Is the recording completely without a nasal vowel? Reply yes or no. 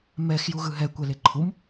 yes